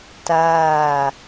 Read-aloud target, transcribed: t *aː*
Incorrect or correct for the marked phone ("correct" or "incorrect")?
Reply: correct